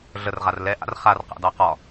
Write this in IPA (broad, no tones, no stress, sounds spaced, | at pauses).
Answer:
ɮ ə r ʁ a r l ɛ ʔ a̰ r χ a r q a̰ d ɑ q ɒ